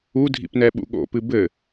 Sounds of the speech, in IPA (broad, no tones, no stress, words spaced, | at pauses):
udʱḭpnɛɓṵ ɠo̰pɨ bɘ